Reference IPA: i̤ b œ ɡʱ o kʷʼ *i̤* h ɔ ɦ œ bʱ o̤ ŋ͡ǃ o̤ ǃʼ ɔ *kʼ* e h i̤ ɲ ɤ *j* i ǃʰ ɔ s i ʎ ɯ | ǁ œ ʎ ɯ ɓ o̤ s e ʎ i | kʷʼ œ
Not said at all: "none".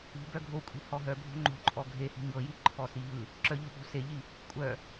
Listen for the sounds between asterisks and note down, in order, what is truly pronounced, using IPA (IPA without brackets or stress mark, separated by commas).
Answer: i̤, ɡʱ, j